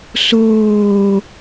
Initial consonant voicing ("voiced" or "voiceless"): voiceless